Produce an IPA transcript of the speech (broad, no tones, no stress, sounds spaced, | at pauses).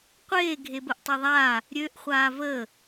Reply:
qʷ eː ɡʱ e b ə ʔ tˤ e ðˤ aː | ɾʲ ø ʔ χʷ aː v əː